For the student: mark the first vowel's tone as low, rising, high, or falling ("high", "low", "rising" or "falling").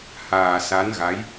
low